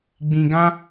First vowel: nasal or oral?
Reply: nasal